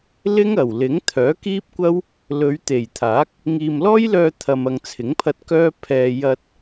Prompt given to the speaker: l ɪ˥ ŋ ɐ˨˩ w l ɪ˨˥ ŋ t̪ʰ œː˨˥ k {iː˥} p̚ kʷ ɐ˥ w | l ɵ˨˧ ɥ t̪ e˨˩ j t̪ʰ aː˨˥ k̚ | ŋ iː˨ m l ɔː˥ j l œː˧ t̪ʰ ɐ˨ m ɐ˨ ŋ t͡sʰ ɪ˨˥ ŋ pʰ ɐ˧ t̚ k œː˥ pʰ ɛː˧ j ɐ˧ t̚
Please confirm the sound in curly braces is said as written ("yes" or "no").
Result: yes